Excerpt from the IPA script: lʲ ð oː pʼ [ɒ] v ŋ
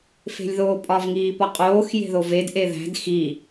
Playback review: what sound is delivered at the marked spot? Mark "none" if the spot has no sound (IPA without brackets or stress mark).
ɒ